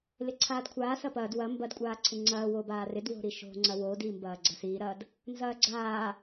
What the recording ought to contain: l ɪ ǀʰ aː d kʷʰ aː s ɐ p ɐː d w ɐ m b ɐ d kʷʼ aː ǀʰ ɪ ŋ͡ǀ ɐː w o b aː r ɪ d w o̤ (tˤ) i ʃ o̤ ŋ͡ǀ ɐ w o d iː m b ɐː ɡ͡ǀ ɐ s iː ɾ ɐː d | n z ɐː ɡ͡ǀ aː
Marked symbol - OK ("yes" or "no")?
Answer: no